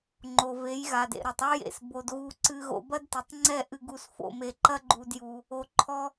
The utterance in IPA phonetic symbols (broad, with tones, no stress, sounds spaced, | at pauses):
ŋ͡ǃ o˨ v e˨˦ j ɣ a˨ d ḛ˨ ɾ o˨ tˤ ɔ˦ j ḛ˨ s b o˧ d ɣ u˧ ǀ ɨ˧ ɣ o̰˧ b ɐ˦ d t ɨ˨ tˤ ŋ͡ǀ ɛ˦˨ ʔ ɨ˧ ɡ u˧ s f o̰˧ m e˧ ǃ ɐ˦ ɡ͡ǃ u˧ d j u˧ | o˧ ǃʰ ɔ˦